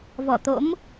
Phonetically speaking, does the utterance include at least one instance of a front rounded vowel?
no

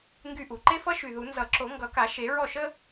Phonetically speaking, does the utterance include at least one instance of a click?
yes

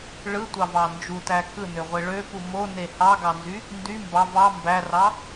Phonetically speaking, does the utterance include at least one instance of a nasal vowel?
no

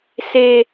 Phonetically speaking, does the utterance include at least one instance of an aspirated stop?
no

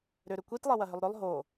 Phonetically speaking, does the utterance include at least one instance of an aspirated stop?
no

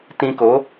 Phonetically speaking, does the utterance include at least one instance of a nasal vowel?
yes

